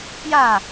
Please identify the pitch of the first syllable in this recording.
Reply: falling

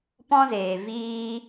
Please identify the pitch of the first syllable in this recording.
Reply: high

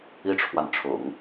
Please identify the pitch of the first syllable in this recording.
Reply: high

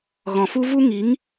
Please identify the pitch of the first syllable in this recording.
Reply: low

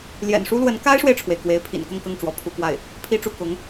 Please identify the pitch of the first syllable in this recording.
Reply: low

